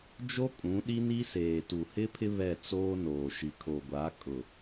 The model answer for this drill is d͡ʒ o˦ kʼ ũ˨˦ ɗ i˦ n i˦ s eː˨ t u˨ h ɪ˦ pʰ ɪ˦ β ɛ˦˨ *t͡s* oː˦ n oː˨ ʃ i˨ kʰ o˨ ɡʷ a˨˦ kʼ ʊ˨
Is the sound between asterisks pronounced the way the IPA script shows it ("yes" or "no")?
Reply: yes